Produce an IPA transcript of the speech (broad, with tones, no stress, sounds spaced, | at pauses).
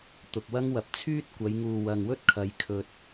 t̪ ʊ˨ k̚ w ɐ˥ ŋ w ɐ˨ p̚ t͡sʰ yː˥ t̚ kʷ ɐ˨˧ j ŋ uː˨ w ɐ˨ ŋ w ɵ˥ t̚ kʰ ɐ˨˧ j kʰ ɵ˨ t̚